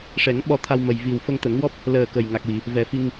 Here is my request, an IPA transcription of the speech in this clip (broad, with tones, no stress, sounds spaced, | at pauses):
ʂ ɛ˨˩˦ ŋ ɓ ɔ˧ t̪ʰ a˧ w m ə˨˩ j v i˨˩ w f ə˧ ŋ t̪ ə˨˩˦ ŋ w ɔ˦˥ p̚ | l əː˨˩ k ə˨˩ j ŋ a˨˩ k̚ w i˨˩˨ | v ɛ˨˩˦ f i˧ ŋ